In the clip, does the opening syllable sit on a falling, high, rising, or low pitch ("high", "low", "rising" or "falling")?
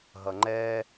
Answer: low